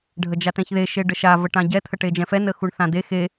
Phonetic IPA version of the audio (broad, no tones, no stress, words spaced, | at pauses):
ɖʱəd͡ʒatɛ̃çðe ʃeɖəʃa vəʈãɟɛ t̪ʰəʈed͡ʒɛ̃fɛ nəxuɳθãd̪e xe